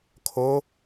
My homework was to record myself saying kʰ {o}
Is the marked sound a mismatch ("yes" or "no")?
no